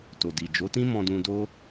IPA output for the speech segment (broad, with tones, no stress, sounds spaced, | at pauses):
t o˨ d i˨ d͡ʒ o˨˦ t ĩ˦ m ɔ̃˧ d ũ˧ d o˦